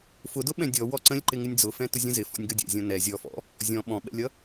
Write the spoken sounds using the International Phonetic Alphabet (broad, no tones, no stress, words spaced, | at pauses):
fʊdʊ ɓɛ̃dʲɔ wɔǀə̃lʲǃɪ ŋɪnʲd͡zʊ fɛ̃tʊzʲə̃zɪ fɔ̰nʲɡʌdʲɛ̰zʲɔ̃ nɛ zʲɔfɔ̰ | zʲɔ̃ ɓɔ̃ɓɛ̰lʲʌ